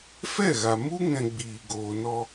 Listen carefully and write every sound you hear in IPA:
fɛ˦˨ɣa˨ mu˦ ŋɛ̃˧ɡ͡biː˨ɡoː˨nɔ˧

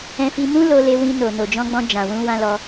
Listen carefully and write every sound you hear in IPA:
ɛ̃˧fi˧mũ˦ lo˧le˧wĩ˧no˨ no˨d͡ʒɔ̃˧ɡ͡bɔ̃˧ d͡ʒã˨wũ˧wã˦lɔ˧

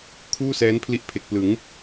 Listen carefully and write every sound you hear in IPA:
kʰuː˥˩sɛː˦˥npʰli˦˥ʔ pʰe˨˩k̚plɯ˩˦ŋ

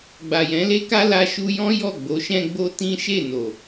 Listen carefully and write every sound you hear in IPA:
ɡ͡ba˨jɛ̃˨˦le˦ka˦ la˧ʃu˧jɔ̃˦ jɔ˦˨ɡ͡bo˨˦ʃɛ̃˦ɡ͡bo˦ tĩ˦ʃe˦˨ no˨

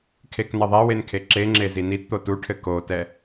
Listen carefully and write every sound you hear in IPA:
kʰeknɐðˤɛwen kʰeǁeŋ͡ǁe zinitt̪o tuʈʰɘ kotɛ

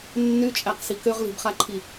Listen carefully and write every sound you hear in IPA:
nːyt͡ʃʼæqsi køʁli̤bχaǃʰi

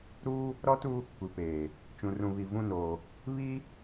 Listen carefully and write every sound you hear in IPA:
ɾuː˦ | ɾɔ˦tu˦ | kʷi˨peː˨ | t͡ʃũ˨rũ˨ βi˨vũ˦˨noː˨ | βi˦

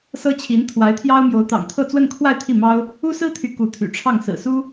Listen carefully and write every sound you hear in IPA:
sɤ˥t͡ɕʰi˧˥n t̪ʰwa˧˥ɪ̯t̪ʰjɑ˥ʊ̯mjo˧˥ʊ̯ t̪ɑ̰˨˩ŋt̪ʰɤ˥˧ t͡swə˥˧nkʰwa˥˧ɪ̯ t̪ʰi˥˩mɑ˥ʊ̯ | u˥sɹ̩˥t̪ʰy˧˥ ku˧˥t̪ʰy̰˨˩ʈ͡ʂʰɑ˥˩ŋ sɹ̩˨˩su˥

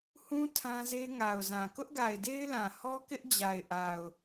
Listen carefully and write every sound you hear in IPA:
hũ˦ tʰã˦ze˦ ŋa˨ʊ̯zã˨ kʊ˦ʔɡa˨ɪ̯de˦ɪ̯lã˨ hɔ˦kɪ˦ʔd͡ʑa˨ɪ̯ ʔa˨ʊ̯

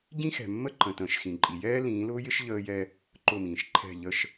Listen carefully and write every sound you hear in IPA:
ɟĩ˦xɛ̤˨mːə˦ǃə̃˨ tə̃ː˨ʃxĩ˨ǃʼi˨ jɛː˦lĩː˨˦lʊː˦jɪ˦ʃ ʎəː˦jɛ˦ | ǃʊ˦˨mĩː˨ʃ ǃʰɛ̤˦˨ʎə˦ʃ

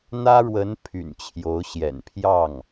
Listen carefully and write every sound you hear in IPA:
n̪ä˥ɻwə˧˥n pʰy̰˨˩nt͡ɕʰjo˧˥ʊ̯ɕjɛ̰˨˩n pʰjɑ˥˩ŋ

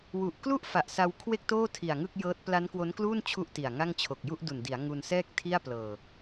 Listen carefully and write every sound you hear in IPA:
wu˨˩ʔklu˥˩ʔ fa˨˩ʔsa˧wkʰwe˥˩k̚toː˥˩ tʰi˨˩a̯ŋɯ˥˩k̚jɤː˦˥t̚ pla˦˥nkwo˦˥nkluː˥˩n t͡ɕʰu˥˩ʔti˨˩a̯ŋa˥˩ŋ t͡ɕʰo˨˩k̚ju˥˩ʔdu˨˩ndi˩˦a̯ ŋu˧nsɛː˥˩k̚ tʰi˥˩a̯plɤː˨˩

